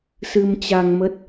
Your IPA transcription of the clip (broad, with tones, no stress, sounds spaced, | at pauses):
s ɨ˧ m t͡ɕ a˧ ŋ m ə˦˥ t̚